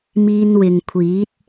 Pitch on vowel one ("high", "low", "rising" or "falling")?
high